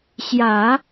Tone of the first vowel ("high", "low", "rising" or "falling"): low